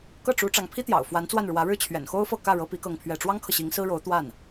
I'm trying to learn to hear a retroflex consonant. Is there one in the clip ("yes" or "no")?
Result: yes